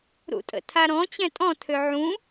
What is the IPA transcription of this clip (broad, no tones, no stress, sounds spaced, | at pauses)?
ɾ ṵ tʼ ə̰ tʰ a ɾ ɔ̃ t͡ɕ ɛ̃ tʼ ɔ̃ tʰ ø ʕ ũ